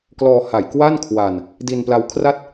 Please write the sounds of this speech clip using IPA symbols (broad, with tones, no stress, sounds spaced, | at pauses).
k l ɔː˧ h a˨˩ j k w a˥˩ n kʰ w a˧ n | d i˧ n p l a˦˥ w kʰ r a˥˩ t̚